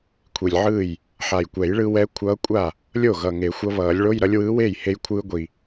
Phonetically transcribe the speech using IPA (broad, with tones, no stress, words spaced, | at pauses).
kʷʰi˨˩lʲʕɯː˥˩j | ħa˨˩jkʷɛ˨˩˦jɭɯ˧wɛ˧˥ kʷʰʌː˧˥kʷʼa˥˩ | lʲo˥˩ ɣʌ˨˩ŋe˨˩˦xʷʌ˧˥βʌː˨˩˦lʲ ɭo˧˥˧jɾʌ˧˥lʲwɯː˧˥weː˥˩j he˧jkʷʰɯː˧ ɡʷi˨˩